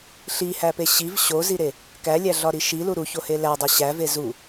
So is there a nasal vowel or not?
no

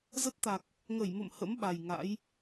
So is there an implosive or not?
yes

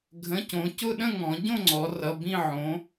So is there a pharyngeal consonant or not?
yes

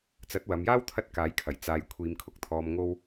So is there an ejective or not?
no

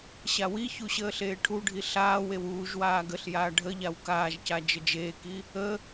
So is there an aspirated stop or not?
yes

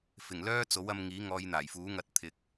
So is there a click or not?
no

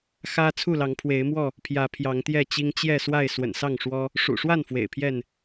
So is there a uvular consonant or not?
no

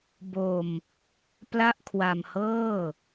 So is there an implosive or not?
no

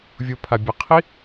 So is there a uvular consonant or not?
yes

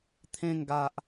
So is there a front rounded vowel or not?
no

